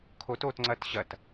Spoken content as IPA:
kʰ o t o t ŋ͡ǀ ɐ t ɕ ɐ t

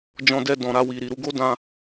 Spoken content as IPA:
d͡ʒ ɔ̃˧ d ɛ˧ d ɔ̃˨ ɾ a˧ w i˨ ɾ i˨ ɾ u˧ ɡ o˦ d ã˦

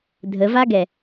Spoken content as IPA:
dʱ ə v a ɡ ɛ

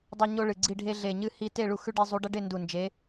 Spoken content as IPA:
dˤ o˦ ɲ o˦ ɭ ɨ˨˩ ɡ͡ǀ i˦˨ ɖʱ e˦ ɮ e˨˩ ɲ ɨ˦˨ h i˦˨ t e˦˨ ɭ u˦˨ x ʉ˦ ɖ e˦ zˤ u˨˦ ɖ ɐ˦ ɖ e˦˨ n d u˨˩ n d͡ʒ e˨˦

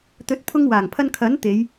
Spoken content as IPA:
t̪ ɵ˨˥ t̚ pʰ ʊ˧ ŋ w aː˨˩ ŋ pʰ ɐ˧ n kʰ ɐ˨˥ n t̪ e˨˧ j

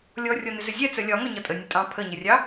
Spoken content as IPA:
lʲ ɔ rʲ ɔ n ʏ z ʏ zʲ ɛ t͡s œ lʲ ɒ ŋ œ ɲ ɒ tʼ ə nʲ ə tʼ ɑ̃ pʰ ə ɲ ə rʲ ɑ

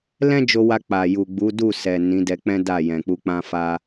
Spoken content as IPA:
l ɛ̃˦ d͡ʒ o˧ w a˧ k͡p a˨ j u˨ ɡ͡b u˨˦ d u˦˨ s ɛ˨ n ĩ˨˦ d ɛ˧ k͡p ɛ̃˦ d a˦˨ j ɛ̃˨ k͡p u˧ k͡p ã˧ f a˧

